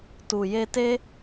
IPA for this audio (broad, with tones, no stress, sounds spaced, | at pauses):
t u˨ j e˧ t e˦